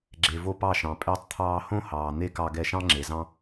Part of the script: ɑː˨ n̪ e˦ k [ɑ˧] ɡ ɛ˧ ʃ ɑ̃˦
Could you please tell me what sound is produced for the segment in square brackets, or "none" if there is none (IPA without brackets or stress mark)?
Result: ɑ˧